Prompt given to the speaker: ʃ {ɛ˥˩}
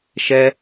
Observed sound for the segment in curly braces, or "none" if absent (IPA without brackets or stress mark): ɛ˥